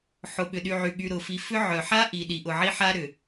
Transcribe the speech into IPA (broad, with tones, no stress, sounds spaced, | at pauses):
ħ ʊ˨ ɓ ʏ˨ ɗ y˨ ʕ y˨ ɠ y˨ ɾ ʊ˨ f i˨ f ʏ˦ ʕ œ˨ ħ a˦ ʔ i˨ ɗ i˨ ʔ ʊ˨ ʕ i˦ ħ a˦ ɾ ʏ˨